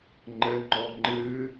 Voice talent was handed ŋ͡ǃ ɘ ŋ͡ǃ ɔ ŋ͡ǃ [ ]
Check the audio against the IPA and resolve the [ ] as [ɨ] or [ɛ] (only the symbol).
ɨ